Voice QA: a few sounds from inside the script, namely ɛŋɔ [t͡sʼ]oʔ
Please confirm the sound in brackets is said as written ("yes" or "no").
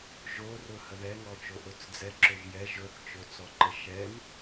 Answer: no